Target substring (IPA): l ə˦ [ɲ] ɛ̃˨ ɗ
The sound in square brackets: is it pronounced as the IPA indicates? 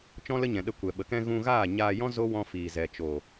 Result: yes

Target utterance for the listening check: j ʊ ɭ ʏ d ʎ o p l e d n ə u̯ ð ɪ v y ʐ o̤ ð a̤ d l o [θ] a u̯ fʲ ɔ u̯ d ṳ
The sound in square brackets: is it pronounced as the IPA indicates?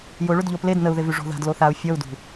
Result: yes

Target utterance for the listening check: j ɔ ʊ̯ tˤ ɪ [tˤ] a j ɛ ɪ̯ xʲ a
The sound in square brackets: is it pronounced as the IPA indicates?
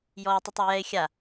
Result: yes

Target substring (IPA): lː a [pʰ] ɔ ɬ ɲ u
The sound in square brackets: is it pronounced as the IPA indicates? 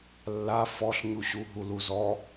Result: no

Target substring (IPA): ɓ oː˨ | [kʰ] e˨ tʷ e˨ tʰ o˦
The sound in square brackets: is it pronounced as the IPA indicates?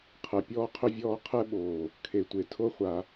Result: yes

